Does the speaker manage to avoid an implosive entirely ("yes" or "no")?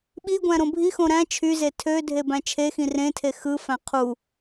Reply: no